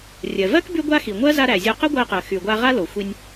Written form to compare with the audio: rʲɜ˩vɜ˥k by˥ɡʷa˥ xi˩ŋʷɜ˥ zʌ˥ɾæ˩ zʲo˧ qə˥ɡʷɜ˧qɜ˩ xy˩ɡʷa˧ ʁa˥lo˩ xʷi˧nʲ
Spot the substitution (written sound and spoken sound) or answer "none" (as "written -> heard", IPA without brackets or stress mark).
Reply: ʌ˥ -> a˥